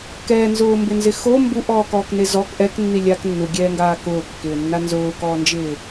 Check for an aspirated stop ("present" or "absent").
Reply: absent